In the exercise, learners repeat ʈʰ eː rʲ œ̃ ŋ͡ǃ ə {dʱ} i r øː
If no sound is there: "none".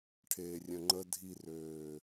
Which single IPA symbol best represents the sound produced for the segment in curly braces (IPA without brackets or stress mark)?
dʱ